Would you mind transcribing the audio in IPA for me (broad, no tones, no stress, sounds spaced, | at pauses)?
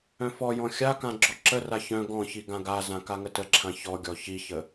œ̃ f ɔ j ɔ̃ xʲ a k ã ɡ͡ǁ ɔ ǁ ə r a ç œ̃ ɡ ɔ̃ ç i ɡ ã ɡ a z ã k a ŋ ə t ə ǁʰ ã ç ɔ ɡʲ ɔ ç i ç ə